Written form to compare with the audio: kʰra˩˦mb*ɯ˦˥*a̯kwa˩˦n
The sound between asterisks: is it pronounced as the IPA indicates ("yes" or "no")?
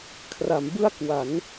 no